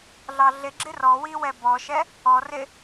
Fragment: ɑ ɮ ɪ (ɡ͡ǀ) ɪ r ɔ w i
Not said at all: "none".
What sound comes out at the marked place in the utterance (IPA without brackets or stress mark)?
ɡ͡ǁ